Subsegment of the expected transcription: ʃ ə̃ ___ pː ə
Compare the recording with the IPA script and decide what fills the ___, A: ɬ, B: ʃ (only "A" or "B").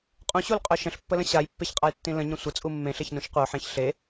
A